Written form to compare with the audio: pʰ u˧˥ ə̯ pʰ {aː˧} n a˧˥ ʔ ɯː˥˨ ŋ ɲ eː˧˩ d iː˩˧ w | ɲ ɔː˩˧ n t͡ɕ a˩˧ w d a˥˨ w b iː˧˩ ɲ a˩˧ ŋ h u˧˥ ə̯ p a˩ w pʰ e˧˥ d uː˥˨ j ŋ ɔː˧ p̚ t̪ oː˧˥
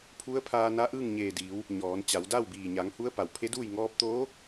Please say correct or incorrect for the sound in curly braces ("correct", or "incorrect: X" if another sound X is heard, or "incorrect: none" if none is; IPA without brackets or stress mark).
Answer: correct